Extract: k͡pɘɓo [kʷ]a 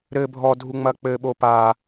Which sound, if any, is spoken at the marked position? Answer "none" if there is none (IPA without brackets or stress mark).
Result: p